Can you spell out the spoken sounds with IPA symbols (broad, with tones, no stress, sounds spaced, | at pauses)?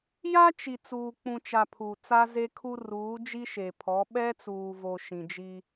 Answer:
j a˦ t͡ʃ i˨ t͡s uː˨ k͡p ũ˨ t͡ʃ a˨ pʰ u˨ t͡s a˦ z e˦ kʰ u˦ r uː˨˦ d͡ʒ i˦ ʃ e˨ pʰ ɔ˨˦ ɓ ɛ˦ t͡s uː˨ v o˨ ʃ ĩ˨ d͡ʒ i˦